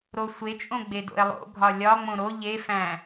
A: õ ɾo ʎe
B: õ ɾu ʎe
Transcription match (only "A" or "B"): A